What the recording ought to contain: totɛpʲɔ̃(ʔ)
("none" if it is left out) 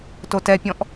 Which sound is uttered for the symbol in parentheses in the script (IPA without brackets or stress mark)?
ʔ